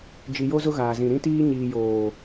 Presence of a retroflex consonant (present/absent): absent